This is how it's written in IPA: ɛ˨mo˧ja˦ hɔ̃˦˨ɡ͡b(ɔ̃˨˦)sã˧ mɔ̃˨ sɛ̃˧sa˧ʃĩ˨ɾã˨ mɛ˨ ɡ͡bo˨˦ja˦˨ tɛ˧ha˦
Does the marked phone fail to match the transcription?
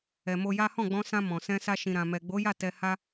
yes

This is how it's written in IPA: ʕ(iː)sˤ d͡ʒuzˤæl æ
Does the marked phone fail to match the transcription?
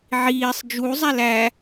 no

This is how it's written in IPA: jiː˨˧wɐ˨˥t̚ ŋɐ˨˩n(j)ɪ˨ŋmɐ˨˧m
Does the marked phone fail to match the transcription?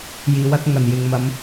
no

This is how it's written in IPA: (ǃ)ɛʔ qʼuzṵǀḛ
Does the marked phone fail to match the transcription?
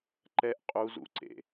no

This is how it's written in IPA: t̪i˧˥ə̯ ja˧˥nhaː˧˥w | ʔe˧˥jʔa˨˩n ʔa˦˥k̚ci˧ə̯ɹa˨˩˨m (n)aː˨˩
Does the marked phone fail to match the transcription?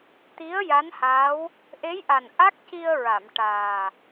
yes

